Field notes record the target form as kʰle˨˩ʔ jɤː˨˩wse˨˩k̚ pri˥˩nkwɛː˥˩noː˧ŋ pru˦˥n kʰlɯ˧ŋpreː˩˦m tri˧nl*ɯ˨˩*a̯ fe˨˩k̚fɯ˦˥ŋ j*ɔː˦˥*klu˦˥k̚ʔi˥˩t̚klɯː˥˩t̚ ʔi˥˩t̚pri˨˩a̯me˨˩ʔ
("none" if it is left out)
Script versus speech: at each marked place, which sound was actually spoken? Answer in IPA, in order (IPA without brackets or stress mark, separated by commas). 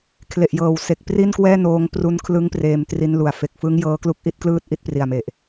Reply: u˨˩, ɤː˦˥